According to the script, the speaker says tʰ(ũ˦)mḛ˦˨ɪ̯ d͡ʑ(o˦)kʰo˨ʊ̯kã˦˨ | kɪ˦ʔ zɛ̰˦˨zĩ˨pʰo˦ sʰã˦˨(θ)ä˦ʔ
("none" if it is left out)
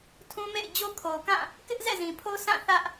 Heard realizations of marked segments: ũ˦, o˦, θ

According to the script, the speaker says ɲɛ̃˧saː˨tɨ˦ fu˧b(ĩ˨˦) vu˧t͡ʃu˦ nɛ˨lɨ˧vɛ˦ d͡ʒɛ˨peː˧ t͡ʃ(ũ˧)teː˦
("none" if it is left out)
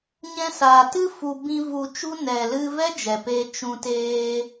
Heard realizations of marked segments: ĩ˦, ũ˧

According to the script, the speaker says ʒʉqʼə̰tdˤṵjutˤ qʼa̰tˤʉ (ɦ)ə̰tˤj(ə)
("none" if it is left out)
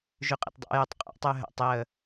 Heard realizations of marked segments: ɦ, ə

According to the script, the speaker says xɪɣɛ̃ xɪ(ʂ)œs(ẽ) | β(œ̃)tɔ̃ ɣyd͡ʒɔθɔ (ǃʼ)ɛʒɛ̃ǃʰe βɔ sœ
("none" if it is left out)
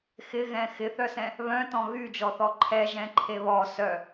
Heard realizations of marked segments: θ, ɛ̃, œ̃, ǃʰ

